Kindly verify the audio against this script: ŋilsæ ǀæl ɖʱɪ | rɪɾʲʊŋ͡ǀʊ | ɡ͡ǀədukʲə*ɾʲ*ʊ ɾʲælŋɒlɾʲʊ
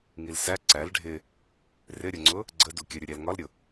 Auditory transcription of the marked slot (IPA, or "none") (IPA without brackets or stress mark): ɾʲ